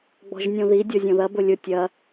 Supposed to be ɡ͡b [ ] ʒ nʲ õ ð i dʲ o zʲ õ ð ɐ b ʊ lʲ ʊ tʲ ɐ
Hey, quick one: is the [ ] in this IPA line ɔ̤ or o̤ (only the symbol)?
ɔ̤